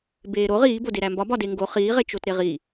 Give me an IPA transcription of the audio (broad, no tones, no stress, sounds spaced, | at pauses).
b eː ɾ o ʁ iː b o d e ɾ æ m b ɒ b ɒ d e ŋ ɡ o χ iː ʁ e t͡ʃ o t ɾ e ʁ i